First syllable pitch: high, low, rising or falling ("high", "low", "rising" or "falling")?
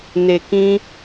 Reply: low